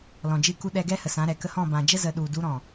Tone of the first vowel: low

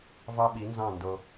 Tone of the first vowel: high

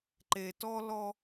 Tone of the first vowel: low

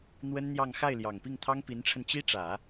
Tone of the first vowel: high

